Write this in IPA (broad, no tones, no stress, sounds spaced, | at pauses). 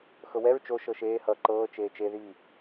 x ɤ w ɛ ɹ t͡ʃ o ʃ ɤ ʃ eː h ʌː ǃ ɤː t͡ʃ eː t͡ʃ e ð i